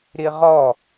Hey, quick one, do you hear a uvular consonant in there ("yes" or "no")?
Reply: yes